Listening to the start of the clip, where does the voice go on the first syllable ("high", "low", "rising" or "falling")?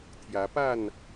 rising